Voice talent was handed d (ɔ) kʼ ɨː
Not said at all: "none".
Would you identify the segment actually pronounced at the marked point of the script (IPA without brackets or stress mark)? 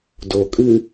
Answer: o